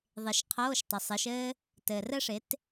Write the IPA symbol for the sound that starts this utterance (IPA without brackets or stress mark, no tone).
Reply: ðˤ